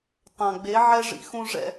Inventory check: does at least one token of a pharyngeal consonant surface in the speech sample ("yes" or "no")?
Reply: yes